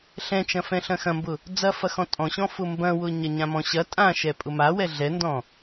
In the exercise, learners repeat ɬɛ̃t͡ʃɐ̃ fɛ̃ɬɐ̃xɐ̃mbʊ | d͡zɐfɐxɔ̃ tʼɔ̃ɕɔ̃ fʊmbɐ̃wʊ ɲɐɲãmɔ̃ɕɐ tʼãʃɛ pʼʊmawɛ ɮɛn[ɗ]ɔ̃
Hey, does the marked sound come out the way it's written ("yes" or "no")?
no